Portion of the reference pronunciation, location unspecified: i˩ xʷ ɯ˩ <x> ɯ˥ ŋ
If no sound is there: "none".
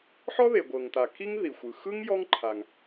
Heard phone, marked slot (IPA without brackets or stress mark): x